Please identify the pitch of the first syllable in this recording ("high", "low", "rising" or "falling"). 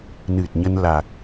low